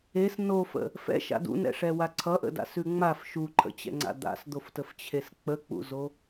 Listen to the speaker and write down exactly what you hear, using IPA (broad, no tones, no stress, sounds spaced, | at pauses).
e s n o f ə̰ | f ɛ̰ ʃ a̰ d ṵ n ɛ̰ ʂ ɛ w a ǀʰ ʌ ʔ ə̰ d a̰ s ʉ ŋ͡m a f ʃ u ǃʰ ə̰ t͡ɕ ɛ̰ ŋ͡ǀ a̰ d̪ a̰ s d̪ o f t ə f t͡ɕʰ e s k͡p ə k͡p ṵ z o